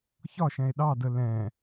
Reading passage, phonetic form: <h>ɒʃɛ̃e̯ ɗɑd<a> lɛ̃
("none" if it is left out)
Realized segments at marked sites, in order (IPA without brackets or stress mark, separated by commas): ç, ə